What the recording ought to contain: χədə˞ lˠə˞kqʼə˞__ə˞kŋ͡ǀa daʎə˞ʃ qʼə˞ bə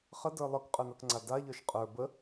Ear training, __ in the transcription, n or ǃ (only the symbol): n